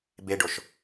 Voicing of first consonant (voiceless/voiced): voiced